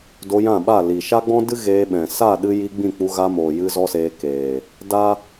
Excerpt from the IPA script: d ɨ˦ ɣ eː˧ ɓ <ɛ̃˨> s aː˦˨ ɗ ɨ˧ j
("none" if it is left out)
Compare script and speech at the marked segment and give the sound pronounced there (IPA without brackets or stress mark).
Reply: ɛ̃˨